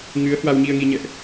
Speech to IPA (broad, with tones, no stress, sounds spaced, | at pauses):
ŋ ɨ˨˦ ə̯ h w a˧ w ɲ i˧ ə̯ ŋ i˧ ɲ ɛ̰˧˨ ʔ